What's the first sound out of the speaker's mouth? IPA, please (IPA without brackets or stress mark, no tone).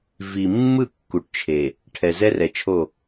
v